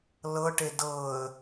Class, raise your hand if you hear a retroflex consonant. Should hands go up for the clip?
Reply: yes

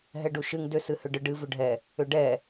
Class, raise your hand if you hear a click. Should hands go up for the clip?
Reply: no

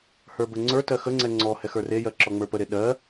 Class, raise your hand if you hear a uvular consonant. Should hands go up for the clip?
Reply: no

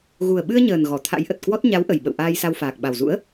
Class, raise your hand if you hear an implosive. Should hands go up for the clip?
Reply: yes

